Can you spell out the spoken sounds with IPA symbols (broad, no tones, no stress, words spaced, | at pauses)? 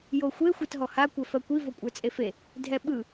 joxʷe xʷɜtɦɔha kʷɛfɜkʷi vokʷʼə˞t͡sʼefe | dʱɛɓɯ